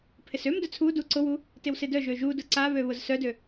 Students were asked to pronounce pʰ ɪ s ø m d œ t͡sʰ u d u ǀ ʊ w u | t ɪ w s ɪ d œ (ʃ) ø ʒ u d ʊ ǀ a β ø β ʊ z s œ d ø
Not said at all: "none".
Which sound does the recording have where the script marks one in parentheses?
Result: ʒ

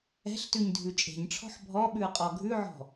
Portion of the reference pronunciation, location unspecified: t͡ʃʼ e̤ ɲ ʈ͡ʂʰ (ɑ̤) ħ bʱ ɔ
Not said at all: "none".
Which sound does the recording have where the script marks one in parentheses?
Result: ɔ̤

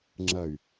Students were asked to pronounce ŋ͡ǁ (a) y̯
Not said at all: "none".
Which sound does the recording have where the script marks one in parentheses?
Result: ɐ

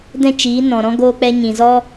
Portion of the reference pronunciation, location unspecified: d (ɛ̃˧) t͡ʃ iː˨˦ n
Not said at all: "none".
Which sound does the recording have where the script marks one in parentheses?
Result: ɛ̃˦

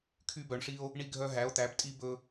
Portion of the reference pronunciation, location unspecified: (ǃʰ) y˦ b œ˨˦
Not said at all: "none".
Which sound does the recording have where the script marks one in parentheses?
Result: kʰ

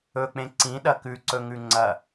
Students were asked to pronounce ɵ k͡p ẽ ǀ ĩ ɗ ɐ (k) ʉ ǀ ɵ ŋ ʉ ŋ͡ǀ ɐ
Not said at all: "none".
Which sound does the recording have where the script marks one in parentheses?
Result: k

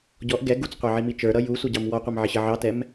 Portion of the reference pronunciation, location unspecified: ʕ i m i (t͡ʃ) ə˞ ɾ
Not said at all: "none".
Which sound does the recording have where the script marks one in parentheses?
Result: t͡ʃ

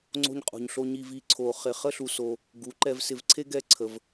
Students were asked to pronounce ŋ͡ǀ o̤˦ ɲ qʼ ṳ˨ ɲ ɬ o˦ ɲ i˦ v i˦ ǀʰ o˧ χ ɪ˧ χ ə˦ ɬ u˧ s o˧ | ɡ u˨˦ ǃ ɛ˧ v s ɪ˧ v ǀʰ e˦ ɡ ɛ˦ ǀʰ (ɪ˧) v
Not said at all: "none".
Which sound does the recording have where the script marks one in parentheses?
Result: ə˧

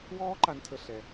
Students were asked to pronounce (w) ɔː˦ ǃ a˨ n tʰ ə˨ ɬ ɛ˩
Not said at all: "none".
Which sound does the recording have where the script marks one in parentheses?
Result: w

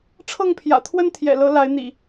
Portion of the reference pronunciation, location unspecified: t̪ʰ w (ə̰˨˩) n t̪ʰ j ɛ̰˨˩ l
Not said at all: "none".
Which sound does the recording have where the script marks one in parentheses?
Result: ə˦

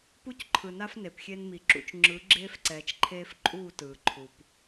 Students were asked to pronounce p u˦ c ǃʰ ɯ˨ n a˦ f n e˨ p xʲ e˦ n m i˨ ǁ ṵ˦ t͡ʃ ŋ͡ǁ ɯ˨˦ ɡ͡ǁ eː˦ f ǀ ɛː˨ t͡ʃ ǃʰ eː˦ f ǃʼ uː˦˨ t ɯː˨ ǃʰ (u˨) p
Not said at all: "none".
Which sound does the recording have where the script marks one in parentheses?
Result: u˨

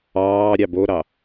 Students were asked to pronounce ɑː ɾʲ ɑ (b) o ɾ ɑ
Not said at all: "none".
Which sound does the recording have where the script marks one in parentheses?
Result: b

